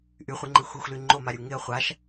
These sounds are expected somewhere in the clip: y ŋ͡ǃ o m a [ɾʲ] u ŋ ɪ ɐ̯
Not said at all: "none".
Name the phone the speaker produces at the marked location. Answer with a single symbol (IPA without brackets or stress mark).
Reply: ɾʲ